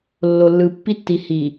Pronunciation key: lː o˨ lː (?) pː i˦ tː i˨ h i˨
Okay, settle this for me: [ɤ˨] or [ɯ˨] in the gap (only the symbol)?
ɯ˨